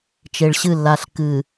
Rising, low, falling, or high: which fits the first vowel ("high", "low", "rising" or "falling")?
low